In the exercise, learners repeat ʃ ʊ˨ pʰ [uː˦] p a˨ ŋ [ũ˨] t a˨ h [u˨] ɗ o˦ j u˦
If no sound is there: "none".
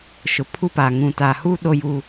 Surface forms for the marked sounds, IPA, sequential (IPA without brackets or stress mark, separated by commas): u˦, ũ˨, u˦